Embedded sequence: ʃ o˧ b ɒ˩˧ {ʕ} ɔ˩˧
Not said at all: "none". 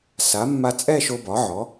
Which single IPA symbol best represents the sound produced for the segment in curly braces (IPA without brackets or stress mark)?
ʕ